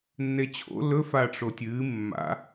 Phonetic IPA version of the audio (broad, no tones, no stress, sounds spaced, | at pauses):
nː e t͡ɕʰ o̰ l ɵ f a ʈ͡ʂ o tʲ ɨː mː a̰